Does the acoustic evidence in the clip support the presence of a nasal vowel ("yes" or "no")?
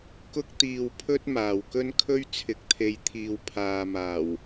no